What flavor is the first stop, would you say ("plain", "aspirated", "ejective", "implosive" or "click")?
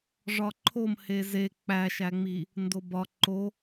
click